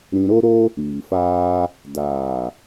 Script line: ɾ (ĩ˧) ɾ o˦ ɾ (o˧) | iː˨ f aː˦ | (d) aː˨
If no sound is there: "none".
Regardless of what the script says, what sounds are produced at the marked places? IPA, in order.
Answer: ĩ˧, o˦, d

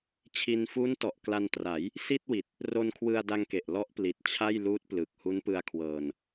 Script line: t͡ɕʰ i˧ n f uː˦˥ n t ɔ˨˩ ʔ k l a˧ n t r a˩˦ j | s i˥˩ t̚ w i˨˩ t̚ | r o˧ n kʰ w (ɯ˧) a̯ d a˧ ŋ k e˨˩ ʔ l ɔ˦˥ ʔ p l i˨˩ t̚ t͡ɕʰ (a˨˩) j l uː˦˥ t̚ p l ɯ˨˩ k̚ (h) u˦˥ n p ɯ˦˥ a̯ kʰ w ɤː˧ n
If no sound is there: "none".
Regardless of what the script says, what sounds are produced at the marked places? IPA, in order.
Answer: ɯ˧, a˥˩, h

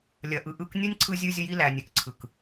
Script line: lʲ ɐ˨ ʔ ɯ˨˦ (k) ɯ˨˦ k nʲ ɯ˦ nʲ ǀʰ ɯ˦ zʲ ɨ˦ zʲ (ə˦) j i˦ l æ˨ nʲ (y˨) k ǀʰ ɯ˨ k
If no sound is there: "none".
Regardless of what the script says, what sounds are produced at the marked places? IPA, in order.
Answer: ʔ, ə˦, ɨ˨

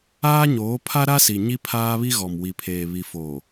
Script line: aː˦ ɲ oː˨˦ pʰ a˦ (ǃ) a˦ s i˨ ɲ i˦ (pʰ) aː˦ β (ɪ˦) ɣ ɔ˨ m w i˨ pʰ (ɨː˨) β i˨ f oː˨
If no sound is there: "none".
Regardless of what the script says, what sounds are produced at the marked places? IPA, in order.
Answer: ɾ, pʰ, i˦, eː˨

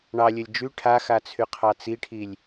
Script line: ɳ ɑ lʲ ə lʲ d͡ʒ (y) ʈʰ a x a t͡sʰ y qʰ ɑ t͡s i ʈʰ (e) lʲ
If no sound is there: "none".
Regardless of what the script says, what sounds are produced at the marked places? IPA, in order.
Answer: y, i

